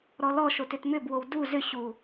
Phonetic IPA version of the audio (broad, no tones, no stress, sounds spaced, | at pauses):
ɾ ɔ l ɔ ʃ o t ʏ t m ʏ b w o w d u z ʏ ɕ u